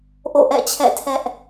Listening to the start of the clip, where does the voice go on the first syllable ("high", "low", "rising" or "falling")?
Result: falling